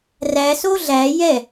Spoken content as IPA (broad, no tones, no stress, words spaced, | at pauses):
ræso ɮæ jɛ